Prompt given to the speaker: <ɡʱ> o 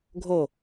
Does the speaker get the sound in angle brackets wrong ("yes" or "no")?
no